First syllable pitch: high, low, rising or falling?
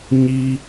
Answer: high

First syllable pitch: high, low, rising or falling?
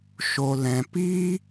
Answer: low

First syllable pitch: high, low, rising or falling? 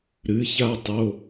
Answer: rising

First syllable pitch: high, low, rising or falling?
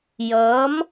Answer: rising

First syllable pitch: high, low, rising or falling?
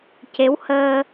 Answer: rising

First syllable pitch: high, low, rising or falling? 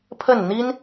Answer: falling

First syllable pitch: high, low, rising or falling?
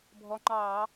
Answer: rising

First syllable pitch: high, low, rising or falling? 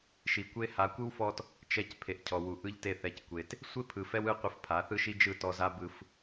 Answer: low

